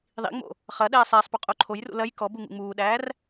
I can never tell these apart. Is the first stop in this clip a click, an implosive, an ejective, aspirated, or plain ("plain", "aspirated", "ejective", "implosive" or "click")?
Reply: implosive